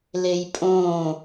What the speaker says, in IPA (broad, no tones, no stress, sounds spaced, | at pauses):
l e j pʼ õː